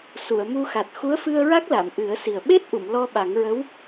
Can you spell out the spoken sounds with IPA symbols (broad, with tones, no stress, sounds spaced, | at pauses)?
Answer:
s u˨˩˨ ə̯ m u˧ x a˨˩ t̚ x u˧˥ ə̯ f ɨ˧ ə̯ ɹ a˦˥ k̚ l a˨˩˨ m ʔ ɨ˨˩˦ ə̯ s i˨˩ ə̯ ɓ e˦˥ t̚ ʔ u˨˩˨ m l ɔ˧ ɓ a˨˩˦ ŋ ɹ ə˧˥ w